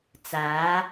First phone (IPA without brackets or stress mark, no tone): t͡s